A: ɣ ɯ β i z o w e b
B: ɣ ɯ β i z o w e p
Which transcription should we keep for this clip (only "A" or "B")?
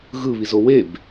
A